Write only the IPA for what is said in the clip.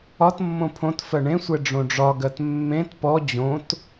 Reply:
ɒtmːõ pʰõtfɜ ɳẽsʷɛ ɖ͡ʐõɖ͡ʐɒɡɜt mːẽt pɔ d͡ʑõt

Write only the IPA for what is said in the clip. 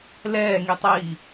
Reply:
lɛːŋitˤiː

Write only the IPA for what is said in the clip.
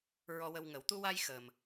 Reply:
ɹɔ˧wə˧wŋə˨˩˦w t̪u˧wa˧j xəː˨˩m

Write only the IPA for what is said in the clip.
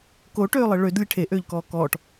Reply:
koʈøːlˠɘ ɭød lʲeʈʰeʔøːʎkɔː kɔʈ

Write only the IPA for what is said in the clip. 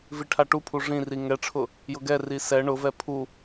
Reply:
viʈʰaʈupʰu ʐĩri ŋɛʈ͡ʂʰʊ | jʊɡɛri sɛ ɳʊvɛ pʰu

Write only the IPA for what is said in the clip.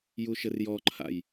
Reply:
juʃɘrjɔǃʰa̰j

